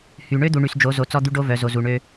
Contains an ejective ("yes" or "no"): no